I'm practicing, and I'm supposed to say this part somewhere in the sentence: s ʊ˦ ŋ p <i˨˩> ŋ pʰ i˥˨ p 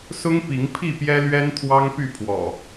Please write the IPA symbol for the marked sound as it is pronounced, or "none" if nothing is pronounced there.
i˨˦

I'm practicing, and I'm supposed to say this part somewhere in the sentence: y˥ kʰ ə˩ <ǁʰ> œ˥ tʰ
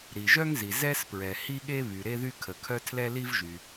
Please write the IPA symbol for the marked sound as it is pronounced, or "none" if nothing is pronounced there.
kʰ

